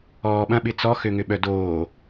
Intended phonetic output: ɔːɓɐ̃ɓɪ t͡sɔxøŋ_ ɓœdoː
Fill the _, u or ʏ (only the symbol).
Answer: ʏ